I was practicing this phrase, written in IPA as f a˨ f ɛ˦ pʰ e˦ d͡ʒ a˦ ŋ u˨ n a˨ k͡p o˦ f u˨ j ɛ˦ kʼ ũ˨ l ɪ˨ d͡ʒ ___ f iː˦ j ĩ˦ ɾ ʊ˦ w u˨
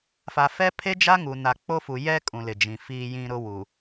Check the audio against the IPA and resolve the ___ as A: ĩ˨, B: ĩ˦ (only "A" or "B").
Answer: A